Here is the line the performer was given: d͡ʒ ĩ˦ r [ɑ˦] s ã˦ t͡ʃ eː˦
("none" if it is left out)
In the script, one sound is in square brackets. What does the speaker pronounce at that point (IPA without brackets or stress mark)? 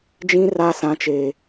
a˦